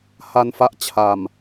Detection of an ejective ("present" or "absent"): absent